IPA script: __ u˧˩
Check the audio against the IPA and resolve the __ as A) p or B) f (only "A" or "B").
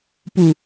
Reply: A